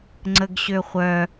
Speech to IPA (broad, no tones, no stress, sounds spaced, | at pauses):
ŋ͡ǀ ə ɡ ɕ ø χʷ œ